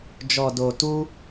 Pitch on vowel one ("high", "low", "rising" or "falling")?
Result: low